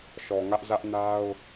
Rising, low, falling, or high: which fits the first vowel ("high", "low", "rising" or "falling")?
low